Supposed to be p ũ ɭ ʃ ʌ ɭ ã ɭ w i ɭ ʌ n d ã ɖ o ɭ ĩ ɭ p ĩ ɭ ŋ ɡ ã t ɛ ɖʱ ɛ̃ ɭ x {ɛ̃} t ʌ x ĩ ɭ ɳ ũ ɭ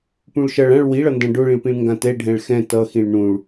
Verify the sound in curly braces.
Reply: correct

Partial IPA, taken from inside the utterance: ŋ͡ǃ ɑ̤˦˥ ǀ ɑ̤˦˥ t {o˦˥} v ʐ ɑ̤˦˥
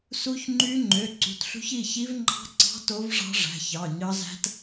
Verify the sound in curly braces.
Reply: correct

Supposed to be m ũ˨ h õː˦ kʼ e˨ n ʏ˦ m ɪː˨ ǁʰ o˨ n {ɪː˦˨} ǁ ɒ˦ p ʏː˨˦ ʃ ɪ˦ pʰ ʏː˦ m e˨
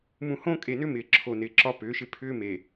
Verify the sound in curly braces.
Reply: incorrect: ɪː˨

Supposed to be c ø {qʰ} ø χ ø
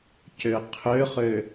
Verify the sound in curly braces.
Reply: correct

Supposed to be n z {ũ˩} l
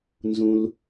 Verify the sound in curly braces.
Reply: correct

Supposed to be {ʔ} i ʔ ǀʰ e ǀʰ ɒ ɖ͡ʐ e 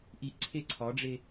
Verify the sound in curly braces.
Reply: correct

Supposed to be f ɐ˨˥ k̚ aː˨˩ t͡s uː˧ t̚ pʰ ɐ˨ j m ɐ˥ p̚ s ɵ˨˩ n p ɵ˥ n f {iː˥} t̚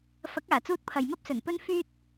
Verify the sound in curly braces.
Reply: incorrect: yː˥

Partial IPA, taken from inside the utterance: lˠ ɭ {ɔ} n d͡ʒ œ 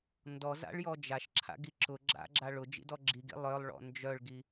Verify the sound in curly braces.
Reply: incorrect: ɔ̰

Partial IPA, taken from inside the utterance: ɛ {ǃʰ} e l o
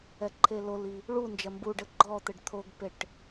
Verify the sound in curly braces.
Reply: correct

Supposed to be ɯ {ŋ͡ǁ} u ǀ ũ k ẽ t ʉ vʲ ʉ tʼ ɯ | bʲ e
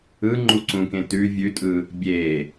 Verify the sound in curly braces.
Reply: incorrect: ŋ͡ǃ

